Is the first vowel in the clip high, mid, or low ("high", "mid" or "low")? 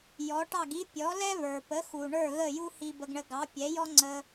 mid